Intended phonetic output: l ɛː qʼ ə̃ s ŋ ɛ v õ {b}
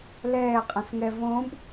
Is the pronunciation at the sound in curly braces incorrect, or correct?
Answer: correct